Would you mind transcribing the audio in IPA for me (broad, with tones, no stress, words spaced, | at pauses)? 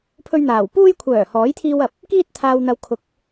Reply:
pʰɵ˧ɥ n̪aː˨˩w puː˧jkʷʰœː˨˩ hɔː˨˥jt̪ʰiː˧wɐ˨p̚ | kiː˧t̚t̪ʰaː˨wn̪ɐ˨w kʰʊ˨˥k̚